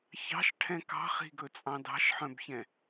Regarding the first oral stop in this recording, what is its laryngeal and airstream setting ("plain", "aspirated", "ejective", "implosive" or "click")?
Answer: aspirated